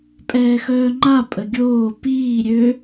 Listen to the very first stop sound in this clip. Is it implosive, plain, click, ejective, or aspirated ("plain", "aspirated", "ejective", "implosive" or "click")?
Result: ejective